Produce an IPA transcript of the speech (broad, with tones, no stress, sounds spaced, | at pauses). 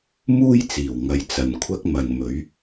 m uː˥ j t͡s iː˨˩ w ŋ ɐ˨ j t͡s ɐ˨ n kʷʰ ɐ˥ k̚ m ɐ˨ n m ɵ˨˥ ɥ